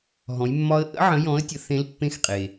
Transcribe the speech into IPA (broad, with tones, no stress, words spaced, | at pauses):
ɦɔ̃˨˦jmːɒ˦˥ə̯ ʔə̰˦˥ʕə̃˨˦ jɔ̃˨˦ə̯tʲə˨ θẽ˦˥lpːẽ˦˥xqʼe˨